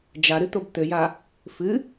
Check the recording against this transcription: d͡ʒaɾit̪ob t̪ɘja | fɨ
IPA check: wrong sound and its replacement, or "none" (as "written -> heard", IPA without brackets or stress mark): i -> ɨ